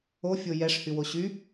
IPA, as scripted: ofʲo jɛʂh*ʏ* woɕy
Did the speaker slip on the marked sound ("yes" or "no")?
yes